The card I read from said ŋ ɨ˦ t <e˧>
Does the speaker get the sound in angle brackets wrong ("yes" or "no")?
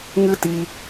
yes